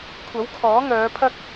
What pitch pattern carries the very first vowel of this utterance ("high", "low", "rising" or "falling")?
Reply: rising